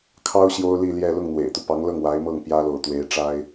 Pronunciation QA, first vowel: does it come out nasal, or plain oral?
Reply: oral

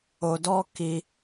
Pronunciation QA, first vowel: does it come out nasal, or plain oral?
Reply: oral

